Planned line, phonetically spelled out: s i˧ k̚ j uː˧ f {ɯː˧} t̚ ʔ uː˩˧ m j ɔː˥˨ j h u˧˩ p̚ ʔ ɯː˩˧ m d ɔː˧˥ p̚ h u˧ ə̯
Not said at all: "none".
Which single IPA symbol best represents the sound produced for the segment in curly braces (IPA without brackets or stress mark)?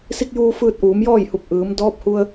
ɯː˧